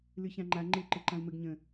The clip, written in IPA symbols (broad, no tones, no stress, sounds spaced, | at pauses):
l ɨ ç ã ŋ͡ǃ a ŋ͡ǃ e ǃ ɨ ǃ ã u̯ m ə ɡ ɲ ə̃